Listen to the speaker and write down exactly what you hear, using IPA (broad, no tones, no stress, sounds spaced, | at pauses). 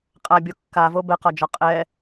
qʼ a bʲ o kː a v o b ɛ q ɒ d͡ʒ ɒ qʼ ɛ